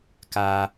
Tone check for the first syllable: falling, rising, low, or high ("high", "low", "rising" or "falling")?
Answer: high